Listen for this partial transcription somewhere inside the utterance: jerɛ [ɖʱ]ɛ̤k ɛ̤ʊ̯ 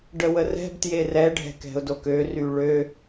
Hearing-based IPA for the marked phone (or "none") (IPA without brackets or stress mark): ɖʱ